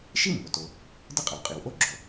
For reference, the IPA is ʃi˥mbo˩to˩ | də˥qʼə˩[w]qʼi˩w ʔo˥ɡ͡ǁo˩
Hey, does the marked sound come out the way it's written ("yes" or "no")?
yes